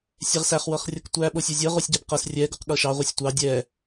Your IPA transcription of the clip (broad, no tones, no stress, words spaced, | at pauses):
sʲɛʁsæχ wɤχrʲɤktʷæ ɓosʲozʲɤ ʁosʲɟɛbqɤs rʲɛ ɡoqɠɤʃɑ ʁʷɤsʲtʷɑ dʲɛ